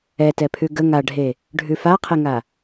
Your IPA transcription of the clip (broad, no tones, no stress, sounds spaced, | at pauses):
ɛ t ɛ pʰ ʉ ɡ ə ŋ a ɖʱ e | ɖʱ ʉ f a qʰ e ŋ a